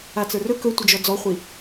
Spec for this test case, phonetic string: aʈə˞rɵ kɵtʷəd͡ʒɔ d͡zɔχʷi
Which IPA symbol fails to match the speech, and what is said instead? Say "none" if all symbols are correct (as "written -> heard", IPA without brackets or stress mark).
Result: ʈ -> t͡s